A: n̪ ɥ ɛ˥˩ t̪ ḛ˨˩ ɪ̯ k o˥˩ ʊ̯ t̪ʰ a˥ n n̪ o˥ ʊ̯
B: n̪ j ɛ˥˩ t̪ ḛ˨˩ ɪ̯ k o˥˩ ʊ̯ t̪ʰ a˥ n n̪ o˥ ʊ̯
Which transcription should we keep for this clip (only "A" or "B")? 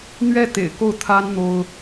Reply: A